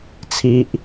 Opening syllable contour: high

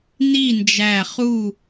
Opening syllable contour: falling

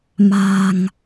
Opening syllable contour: low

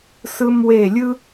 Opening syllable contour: high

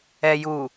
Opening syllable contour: low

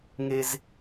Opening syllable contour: high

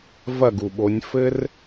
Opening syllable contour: falling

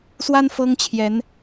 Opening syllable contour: high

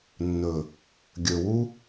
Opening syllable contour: low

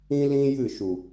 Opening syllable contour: high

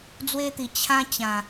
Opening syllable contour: high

